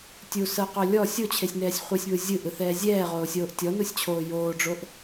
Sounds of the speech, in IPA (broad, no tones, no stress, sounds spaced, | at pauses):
tʲ u s ɤ q o lʲ ɔ sʲ o t͡ɕʰ e sʲ n ɛː sʲ χʷ e sʲ β ɯ zʲ ɯ ʔ ɯ θ ɛː zʲ ɛː ʁ oː sʲ oː ʔ tʲ ɔ n u sʲ t͡ɕʰ oː j oː ɖ͡ʐ o ʔ